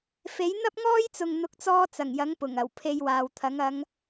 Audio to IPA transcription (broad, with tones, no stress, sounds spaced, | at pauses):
f e˨˥ j n̪ ɐ˥ p̚ ŋ ɔː˥ j t͡s ʊ˨ ŋ n̪ ʊ˨˥ k̚ t͡s ɔː˧ t͡s ɐ˨˩ ŋ j ɐ˨˥ ŋ p ʊ˨˩ ŋ ɐ˨˩ w pʰ e˧ j w aː˨ w t̪ʰ ɐ˨˥ ŋ ɐ˨˧ ŋ